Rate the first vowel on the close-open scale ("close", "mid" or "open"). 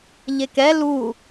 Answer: mid